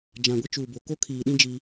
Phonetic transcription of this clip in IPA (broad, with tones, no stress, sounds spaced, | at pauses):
d͡ʒ ã˨ ɡʷ ɪ˦ t͡ʃ uː˨ b o˨ k o˦ kʰ iː˨ ɗ ĩ˦ d͡ʒ i˦